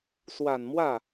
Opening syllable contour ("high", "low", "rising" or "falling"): low